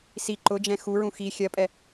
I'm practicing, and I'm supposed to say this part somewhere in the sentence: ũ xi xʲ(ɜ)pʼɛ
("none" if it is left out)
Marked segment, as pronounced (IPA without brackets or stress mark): ɜ